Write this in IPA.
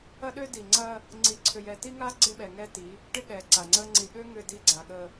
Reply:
ɐ˦ɗø˦di˨ ŋ͡ǀɐ˦ | ŋ͡ǀi˨ ǀʰʏ˨jɛ˨ ti˦ŋa˦ ɡ͡ǀɪ˦ɓɛ˨ŋɛ˦ti˨˦ | ʈɪ˦ɠɛ˨ǀa˨ŋ͡ǀə˦ ŋ͡ǀi˨ɠø˦ ŋʏ˦˨di˦ɡ͡ǀa˨ ɠə˦

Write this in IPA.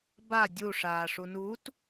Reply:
ba dʲu ʂaːʂunut

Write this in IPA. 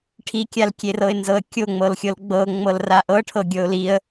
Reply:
ʈʰikʲalkʲerɤɪ̯ nzɤə̯kʲoŋ͡mɤlxʲɤl ɡ͡bɤ ŋ͡mɤlraʔɤʈʰɤ ɡʲɤʊ̯liə̯

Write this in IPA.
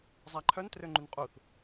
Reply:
zˤaǃʰœn trøŋ͡ǃynqʼuθ

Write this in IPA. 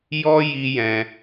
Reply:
jɔ˦ ji˦ jɛ̃˧

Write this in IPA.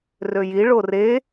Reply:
røji ɭore

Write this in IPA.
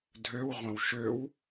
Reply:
dʱøwʁʷɐ̃w ʃøw

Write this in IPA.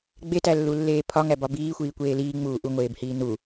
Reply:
ɡ͡betælːulːeː pʰɒŋæbɒ biːxʷiːkʷeː liːŋ͡muː ʔuŋʷeːbhiː nu

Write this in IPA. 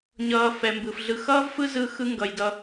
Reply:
ɲʌː˨fɛ˩mbɯ˩fɮɯ˨ xʌː˥vfɯ˦zɯ˨ xɯ˨ŋɡʌ˩j dʌ˨

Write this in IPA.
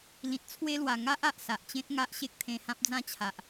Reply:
lĩ˨t̚t͡sʰwe˦lwa˨˩ ŋa˦ʔ a˨ʔsa˨ʔt͡ɕẽ˦t̚ŋa˦ʔ ɕe˦k̚t̪ʰẽ˧hã˦p̚ d͡zã˥˧t͡ɕʰa˨ʔ

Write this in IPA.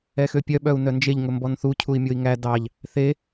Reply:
ɛxøpʲœ ɓœu̯nœnd͡ʒeʎ ŋɵmbɔnθu cʰui̯mʲoi̯ŋæ dɑʎ | θe

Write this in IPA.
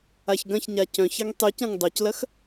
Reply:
açɡɐ̃çɲa cœ̃çɐŋ tˤycɐ̃ŋ dˤœclɐx

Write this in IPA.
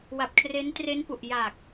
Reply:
wa˨˩p̚kʰre˦˥ntre˦˥npu˨˩ʔ ja˨˩k̚

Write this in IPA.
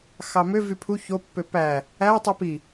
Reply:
xɑmøvy pʰu çopːø pæ | ætˤy pi

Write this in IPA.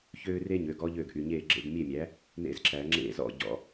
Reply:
çøː˥ re˥ɲø˩˥ɡɔ˧˥ ʎø˥˩ɡʔy˨ɲeː˥˩ ɡ͡ǁḛ˥˩ɡmʲe˥˩mʲæ˩˥ | nḛ˥˩zǁæ˨˩˦ŋ͡ǁḛ˥˩zɔ̰˥˩ ɟɔ̰˨˩˦

